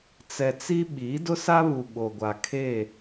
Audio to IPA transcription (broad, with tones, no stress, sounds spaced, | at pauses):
t͡s ɛ˨ t͡s i˦ ɓ iː˨˦ d ʊ˦ s a˦ β u˨ ɓ o˨ ɡʷ a˨ kʰ e˦˨